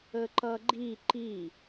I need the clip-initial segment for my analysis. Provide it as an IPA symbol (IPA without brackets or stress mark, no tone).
ə